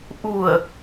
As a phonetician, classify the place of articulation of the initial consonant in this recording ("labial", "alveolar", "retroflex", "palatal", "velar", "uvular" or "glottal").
glottal